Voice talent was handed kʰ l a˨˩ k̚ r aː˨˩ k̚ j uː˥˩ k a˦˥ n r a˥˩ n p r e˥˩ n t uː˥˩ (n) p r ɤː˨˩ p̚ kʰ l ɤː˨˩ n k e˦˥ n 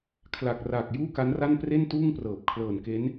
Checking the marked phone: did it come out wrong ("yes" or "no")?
yes